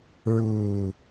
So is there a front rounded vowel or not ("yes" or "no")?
no